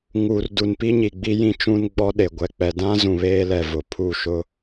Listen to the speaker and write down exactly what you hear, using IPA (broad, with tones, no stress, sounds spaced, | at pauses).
ŋ u˨ r d u˨ n p i˦ ɲ i˨ ɡ͡b i˦ j ĩ˦ t͡ʃ ũ˦ n ɡ͡b ɔ˦ ɗ e˨ ɡʷ ɛ˨ k͡p ɛ˨ d ã˦ z ũ˨ β eː˦ l ɛ˨ v ʊ˨ pʰ u˦˨ ʃ ʊ˦